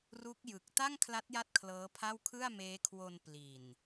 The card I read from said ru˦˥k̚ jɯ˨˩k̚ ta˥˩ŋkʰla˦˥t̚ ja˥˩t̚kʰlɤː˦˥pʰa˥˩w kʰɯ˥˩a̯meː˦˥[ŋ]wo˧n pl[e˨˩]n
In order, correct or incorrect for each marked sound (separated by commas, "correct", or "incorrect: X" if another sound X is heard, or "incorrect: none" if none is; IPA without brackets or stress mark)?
incorrect: kʰ, incorrect: i˨˩